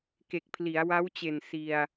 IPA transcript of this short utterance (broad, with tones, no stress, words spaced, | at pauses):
ke˨˩k̚pʰli˩˦a̯ wa˦˥wt͡ɕe˨˩n si˧a̯